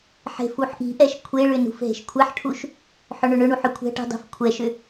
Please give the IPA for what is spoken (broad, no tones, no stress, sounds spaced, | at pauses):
ħ e̤ f u ħ ʔ i̤ ʔ ɛ ʃ kʷʰ e ɭ ʏ n ṳ f ɦ e̤ ʃ kʷʰ ɛ ħ ʈʰ u ʃ | ħ ʏ ɳ ʏ ɳ ʏ ɳ u ħ ʏ kʷʰ ɛ̤ ʈ i̤ dˤ e̤ f kʷʰ ɛ ʃ ʏ